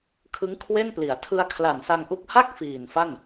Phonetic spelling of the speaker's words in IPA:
kʰɯ˦˥ŋkʰwe˥˩npli˩˦a̯ tʰɯ˧a̯kʰla˨˩nsa˧ŋ ʔu˦˥k̚ ha˥˩k̚ fiː˨˩nfa˥˩n

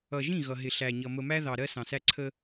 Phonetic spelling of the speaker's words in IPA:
ʌ˨ʒĩ˦˨ ɣʌ˨ɦɪ˨ɬæ˨ɲʌ˨ mə˨mæ˦ ðɑ˨ɾɜ˦ sɑ̃˨sæ˦ ǀʰə˦

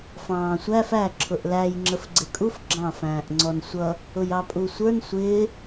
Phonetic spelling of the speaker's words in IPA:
fɑ̃ːsʷæf æ ǁʰʊʔlæj ŋ͡ǁəfɡ͡ǀɪkʼuf ɡ͡ǁɑ̃f æ̃ːʔŋ͡ǀɔnsʷʌ | ʊjɑpʼusʷə˞n sʷɪː

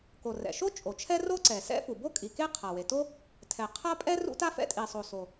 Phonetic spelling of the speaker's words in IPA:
ko˩rɛ̰˩ʃo˥ t͡ʃʼo˩t͡ʃʰɛ˥ ro˥ǀɛ˩ sɛ̰˥fu˩ bo˥ kʼi˩ke˥ qʰa˩we˩to˥ | tʰɛ˩qʰa˥ pʼɛ˥ rṵ˥ta˥fɛ̰˥ tʼi˩sˤo˩ so˩

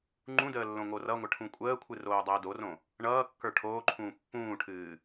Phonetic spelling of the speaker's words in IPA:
ŋ͡ǃũdəː lːõŋorʌŋʷə ʈʰũkʷʼəːkʷʰɨ roːdˤəːdorõ | ɳʌːkːə˞ ʈʰoːǃʰũː pːũːʈʰɨː

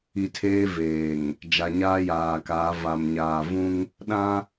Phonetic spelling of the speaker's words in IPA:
i˨tʰeː˦ veː˨ŋ | d͡ʒa˨ɲaː˦jaː˨kaː˨˦ va˨mɲaː˨vũ˦ŋ | ɗã˦

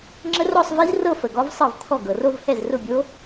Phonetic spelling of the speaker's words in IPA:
ŋ͡ǁə˦˥rɔ˥˧sˤvi˦˥zrɤ˥˧ fə˩ɡɔ˦˥vsˤɤ˥˩vt̪ʰɔ˥˩ ɡɤ˩ro˥˧v hɛ˥˩zrʊ˥˩bʲo˦˥

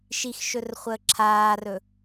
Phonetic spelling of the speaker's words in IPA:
ʃixʃɵrχʷəː ǁʰaːrɵ

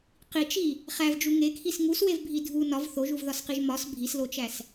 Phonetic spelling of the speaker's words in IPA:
qit͡ʃi | χævd͡ʒu ŋekʰis ŋuswevbʱi dʱu nɒv θoʒuvðɒsqiʒ mɒs bʱislot͡ʃæs

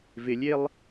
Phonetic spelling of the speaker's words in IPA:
vɪlʲelˠ

